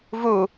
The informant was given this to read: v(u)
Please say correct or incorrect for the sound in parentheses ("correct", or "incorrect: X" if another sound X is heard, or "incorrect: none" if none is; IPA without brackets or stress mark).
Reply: correct